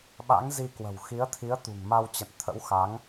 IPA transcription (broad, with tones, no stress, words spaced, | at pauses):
ɓa̰˧˥ŋzi˧kwə̤˨˩w xi˨˦ə̯t̪ʰi˨˦ə̯t̪ṳ˨˩ŋ ma˧wt͡ɕə̰˧˨n t̪ʰə̰˧˥wxa˨˦ŋ